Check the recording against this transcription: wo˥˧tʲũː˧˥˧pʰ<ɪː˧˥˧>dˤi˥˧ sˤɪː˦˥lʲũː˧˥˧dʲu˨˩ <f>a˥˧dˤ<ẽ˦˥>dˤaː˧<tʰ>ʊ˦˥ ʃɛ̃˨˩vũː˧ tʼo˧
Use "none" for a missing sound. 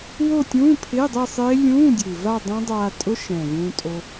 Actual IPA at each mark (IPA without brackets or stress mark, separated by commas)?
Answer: ɪː˧˥˧, v, ẽ˦˥, tʼ